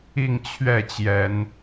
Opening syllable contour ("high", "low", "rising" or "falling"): falling